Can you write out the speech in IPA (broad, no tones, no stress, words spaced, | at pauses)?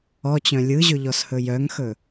ɔt͡ɕœ̃ lʲɯʑɵʎɔshɵ jœŋxɵ